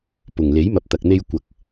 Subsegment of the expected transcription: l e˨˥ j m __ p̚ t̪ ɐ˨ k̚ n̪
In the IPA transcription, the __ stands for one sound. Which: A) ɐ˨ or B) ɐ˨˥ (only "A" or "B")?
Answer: A